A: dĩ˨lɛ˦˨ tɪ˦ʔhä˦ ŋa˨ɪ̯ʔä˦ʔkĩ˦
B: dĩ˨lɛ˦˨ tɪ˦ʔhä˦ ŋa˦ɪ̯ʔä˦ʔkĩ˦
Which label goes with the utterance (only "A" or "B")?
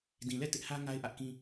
B